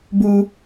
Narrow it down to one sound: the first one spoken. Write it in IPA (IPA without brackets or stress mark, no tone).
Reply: b